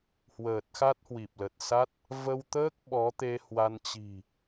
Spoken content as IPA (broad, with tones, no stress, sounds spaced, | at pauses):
h w əː˨˩ t̚ x a˦˥ t̚ h w i˨˩ p̚ l ə˨˩ t̚ s a˦˥ t̚ | v ə˧ w t̪ əː˦˥ k̚ ɓ ɔ˨˦ t̪ e˧ h w a˧ n t͡ɕ i̤˨˩